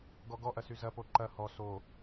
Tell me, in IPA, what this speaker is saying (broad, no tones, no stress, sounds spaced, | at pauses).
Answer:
ɡ ɔ ɡ ɔ ʔ ɐ s y z ɐ p o ǃ ɐ h ɔ s o